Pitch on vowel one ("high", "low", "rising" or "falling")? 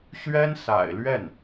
high